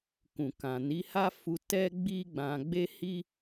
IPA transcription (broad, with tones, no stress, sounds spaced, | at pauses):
k ũ˨ k ã˨ n i˨˦ h a˦ f u˧ t ɛ˦ ɡ͡b i˦ ɡ͡b ã˧ ɡ͡b e˦ h i˦